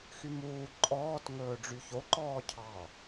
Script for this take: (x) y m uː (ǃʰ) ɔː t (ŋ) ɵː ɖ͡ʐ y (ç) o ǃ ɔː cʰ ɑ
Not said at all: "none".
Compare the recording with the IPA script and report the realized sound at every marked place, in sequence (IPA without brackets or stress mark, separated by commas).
x, ǃʼ, ŋ, ç